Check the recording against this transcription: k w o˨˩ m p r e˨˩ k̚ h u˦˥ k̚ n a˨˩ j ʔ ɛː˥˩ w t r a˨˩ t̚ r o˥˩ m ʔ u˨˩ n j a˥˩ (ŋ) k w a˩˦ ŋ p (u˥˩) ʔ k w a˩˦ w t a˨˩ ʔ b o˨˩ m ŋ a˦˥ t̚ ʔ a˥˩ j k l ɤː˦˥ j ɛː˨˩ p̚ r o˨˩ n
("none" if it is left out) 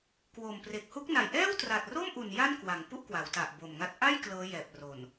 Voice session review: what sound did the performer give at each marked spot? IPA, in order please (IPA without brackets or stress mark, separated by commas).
n, u˥˩